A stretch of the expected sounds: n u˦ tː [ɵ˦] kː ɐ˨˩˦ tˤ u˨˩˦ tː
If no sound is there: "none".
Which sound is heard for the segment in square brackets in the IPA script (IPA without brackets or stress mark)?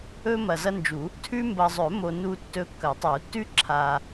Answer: ɵ˦